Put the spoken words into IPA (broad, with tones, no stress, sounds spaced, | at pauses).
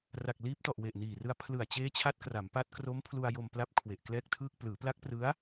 r a˨˩ k̚ l iː˦˥ p̚ t ɔ˨˩ ʔ w e˨˩ ʔ n iː˨˩ r ɯ˧ a̯ pʰ l ɯ˨˩ a̯ t͡ɕ eː˦˥ t͡ɕʰ a˦˥ t̚ k r a˩˦ m p a˦˥ t̚ k r o˦˥ m pʰ l u˧ a̯ j o˧ m p l a˦˥ p̚ kʰ w e˨˩ ʔ k l ɛː˥˩ k̚ tʰ ɯː˥˩ k̚ p l ɯː˩˦ p l a˦˥ k̚ p r ɯ˦˥ a̯